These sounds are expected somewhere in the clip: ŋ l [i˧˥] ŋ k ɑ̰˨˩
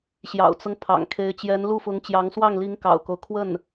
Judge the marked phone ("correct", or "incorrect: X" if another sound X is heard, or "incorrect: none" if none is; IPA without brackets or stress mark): correct